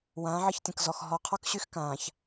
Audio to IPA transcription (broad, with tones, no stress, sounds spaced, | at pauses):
w ãː˨˦ ʕ ə˦ ç tʲ ə̃˨ k z ɔ˨ x ɦ ɔ˨ qʰ ɔ˦ k ɕ y˦ x k ãː˨ ç